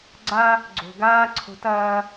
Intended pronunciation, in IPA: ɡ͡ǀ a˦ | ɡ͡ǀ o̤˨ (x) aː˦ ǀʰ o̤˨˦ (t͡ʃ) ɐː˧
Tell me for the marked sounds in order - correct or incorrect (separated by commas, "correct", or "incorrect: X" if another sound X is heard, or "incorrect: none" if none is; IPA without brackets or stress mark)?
incorrect: ɡ, incorrect: t